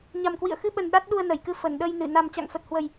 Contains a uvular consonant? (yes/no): no